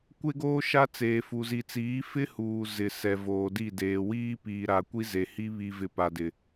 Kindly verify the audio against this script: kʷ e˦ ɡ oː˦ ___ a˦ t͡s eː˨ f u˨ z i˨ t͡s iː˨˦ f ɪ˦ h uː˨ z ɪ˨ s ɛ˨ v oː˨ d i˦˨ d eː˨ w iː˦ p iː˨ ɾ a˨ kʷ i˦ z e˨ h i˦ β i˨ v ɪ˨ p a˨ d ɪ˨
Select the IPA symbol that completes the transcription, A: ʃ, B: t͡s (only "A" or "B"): A